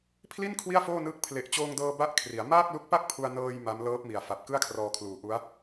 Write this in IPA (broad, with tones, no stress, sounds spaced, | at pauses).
pʰ l i˥˩ n kʰ w i˥˩ a̯ f oː˥˩ n ɯː˦˥ k̚ pʰ l e˨˩ ʔ t͡ɕ oː˧ ŋ d ɤː˧ b a˦˥ ʔ kʰ r i˩˦ a̯ m aː˥˩ k̚ l u˦˥ k̚ p a˥˩ k̚ pʰ u˧ a̯ n ɤː˧ j m a˦˥ m l ɤː˦˥ p̚ m i˨˩ a̯ f a˨˩ p̚ k ɯ˥˩ a̯ kʰ r ɔː˧ kʰ l uː˨˩ ʔ u˦˥ a̯